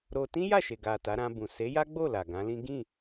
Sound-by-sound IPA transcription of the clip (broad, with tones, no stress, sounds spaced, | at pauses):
ɾ o˧ t ĩ˦ j a˦˨ ʃ e˨ ɡ a˨ t a˨˦ ɾ ã˧ b ũ˨ s e˨˦ j a˦ ɡ͡b o˦˨ l a˨ ɡ ã˨˦ l ĩ˦ ɡ ĩ˦˨